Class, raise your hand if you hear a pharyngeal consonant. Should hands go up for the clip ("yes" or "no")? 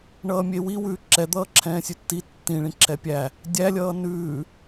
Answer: no